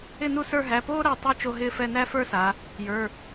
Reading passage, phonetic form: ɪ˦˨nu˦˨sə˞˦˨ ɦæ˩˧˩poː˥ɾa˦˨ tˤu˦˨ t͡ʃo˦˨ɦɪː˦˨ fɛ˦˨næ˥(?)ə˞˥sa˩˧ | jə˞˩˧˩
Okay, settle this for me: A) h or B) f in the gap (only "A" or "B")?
B